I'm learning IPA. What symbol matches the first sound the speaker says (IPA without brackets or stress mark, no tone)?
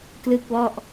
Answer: k